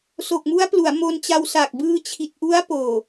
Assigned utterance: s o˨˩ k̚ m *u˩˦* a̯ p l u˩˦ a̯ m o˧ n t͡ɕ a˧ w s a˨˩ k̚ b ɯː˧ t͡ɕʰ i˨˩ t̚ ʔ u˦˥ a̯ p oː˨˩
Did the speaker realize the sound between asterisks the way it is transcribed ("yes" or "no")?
no